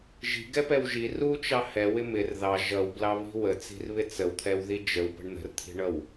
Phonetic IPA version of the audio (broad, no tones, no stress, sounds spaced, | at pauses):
ʒ i̤ ɡ ɛ p ɛ w ʒ i r u t͡ʃ ɑ h ɛ w ɪ m ɪ r ð ɑ ʒ ʌ w b l ɑ β i̤ w ə t͡s i̤ r β ɪ t͡s ə w t̪ʰ ɛ w ð i d͡ʒ ə w p ə̤ ɳ n̪ ə̤ r t̪ʰ i̤ ɳ ʌ w